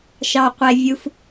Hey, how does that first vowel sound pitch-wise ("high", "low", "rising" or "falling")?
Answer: low